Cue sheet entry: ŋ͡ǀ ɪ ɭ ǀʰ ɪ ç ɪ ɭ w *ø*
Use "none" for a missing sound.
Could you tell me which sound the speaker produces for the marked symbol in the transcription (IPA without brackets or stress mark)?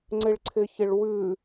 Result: ʉ